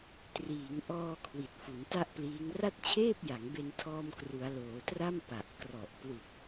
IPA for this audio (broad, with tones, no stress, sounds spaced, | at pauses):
t r iː˩˦ ŋ ʔ ɔː˧ kʰ w i˨˩ t̚ f u˩˦ n t a˥˩ ʔ p l iː˦˥ ŋ r a˥˩ t̚ t͡ɕʰ eː˥˩ p̚ j a˩˦ ŋ b e˧ n tʰ ɔː˧ m k r u˩˦ a̯ l oː˩˦ t r a˥˩ m p a˨˩ ʔ k r ɔ˨˩ ʔ p l u˨˩ k̚